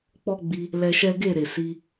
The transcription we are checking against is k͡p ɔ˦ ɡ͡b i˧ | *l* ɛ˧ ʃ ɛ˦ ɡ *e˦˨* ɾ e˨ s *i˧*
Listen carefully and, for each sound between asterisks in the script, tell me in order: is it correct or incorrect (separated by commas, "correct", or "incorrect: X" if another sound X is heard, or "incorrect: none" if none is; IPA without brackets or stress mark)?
correct, correct, correct